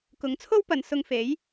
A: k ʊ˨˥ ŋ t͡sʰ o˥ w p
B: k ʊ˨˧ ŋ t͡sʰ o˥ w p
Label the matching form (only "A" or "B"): A